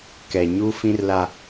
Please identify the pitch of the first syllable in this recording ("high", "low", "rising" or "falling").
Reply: low